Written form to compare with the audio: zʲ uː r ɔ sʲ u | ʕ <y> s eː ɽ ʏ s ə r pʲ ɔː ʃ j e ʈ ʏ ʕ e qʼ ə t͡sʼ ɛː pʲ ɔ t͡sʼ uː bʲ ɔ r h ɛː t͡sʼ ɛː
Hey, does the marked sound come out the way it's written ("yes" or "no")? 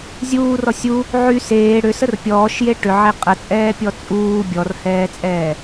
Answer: yes